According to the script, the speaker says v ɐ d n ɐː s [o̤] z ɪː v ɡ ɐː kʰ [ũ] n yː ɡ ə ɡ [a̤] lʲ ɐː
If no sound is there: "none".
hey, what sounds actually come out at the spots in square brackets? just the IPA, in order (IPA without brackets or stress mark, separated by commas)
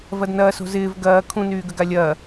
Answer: o̤, ũ, a